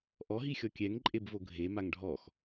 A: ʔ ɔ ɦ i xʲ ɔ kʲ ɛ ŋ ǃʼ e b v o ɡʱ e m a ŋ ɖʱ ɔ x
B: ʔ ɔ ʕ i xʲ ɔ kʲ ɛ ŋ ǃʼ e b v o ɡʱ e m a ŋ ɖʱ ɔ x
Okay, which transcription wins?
A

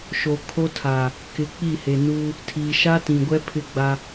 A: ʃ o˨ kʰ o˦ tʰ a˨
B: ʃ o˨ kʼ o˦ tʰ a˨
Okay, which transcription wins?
A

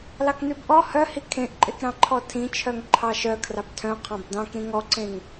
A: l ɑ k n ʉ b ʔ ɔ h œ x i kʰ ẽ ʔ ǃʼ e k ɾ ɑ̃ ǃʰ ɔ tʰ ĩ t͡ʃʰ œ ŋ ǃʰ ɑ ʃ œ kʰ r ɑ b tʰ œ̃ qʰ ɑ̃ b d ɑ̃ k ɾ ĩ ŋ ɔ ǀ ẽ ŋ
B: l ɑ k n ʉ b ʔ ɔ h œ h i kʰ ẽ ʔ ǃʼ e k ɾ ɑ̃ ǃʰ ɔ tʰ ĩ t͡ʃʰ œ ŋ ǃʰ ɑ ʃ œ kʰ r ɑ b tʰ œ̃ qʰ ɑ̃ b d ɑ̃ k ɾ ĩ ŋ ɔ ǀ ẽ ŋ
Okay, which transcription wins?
B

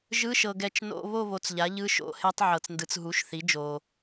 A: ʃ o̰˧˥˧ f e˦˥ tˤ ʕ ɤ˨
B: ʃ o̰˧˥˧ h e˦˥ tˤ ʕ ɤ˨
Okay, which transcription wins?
B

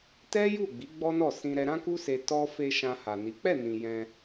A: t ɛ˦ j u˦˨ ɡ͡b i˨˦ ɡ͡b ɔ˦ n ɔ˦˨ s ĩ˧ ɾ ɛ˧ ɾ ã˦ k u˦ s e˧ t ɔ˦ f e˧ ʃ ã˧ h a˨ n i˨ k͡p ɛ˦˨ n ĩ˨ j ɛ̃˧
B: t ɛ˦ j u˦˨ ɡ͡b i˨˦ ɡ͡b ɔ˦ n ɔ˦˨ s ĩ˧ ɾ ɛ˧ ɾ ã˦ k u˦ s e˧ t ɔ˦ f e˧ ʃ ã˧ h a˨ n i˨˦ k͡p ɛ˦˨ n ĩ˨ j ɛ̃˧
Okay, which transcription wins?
B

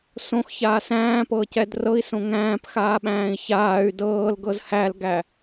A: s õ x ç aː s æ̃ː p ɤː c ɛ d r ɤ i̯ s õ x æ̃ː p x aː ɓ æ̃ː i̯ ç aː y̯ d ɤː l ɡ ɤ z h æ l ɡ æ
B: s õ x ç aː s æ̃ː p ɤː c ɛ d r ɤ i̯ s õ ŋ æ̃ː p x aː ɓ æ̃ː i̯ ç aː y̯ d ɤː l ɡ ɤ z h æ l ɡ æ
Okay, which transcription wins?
B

